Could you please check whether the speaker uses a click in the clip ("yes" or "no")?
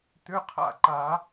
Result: yes